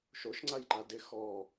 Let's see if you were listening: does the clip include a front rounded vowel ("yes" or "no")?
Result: no